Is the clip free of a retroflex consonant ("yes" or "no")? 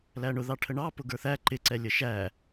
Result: no